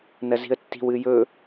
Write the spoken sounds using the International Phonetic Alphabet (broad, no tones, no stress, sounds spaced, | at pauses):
n ɐ z i̤ ə̯ tː i̤ w ɨ j ɵ